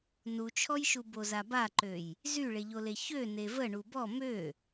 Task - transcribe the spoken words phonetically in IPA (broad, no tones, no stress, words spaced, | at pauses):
nut͡ʃʰɔjʃu bozabaǃøj | zyɭeʎole çø nevə ɳubɔ mø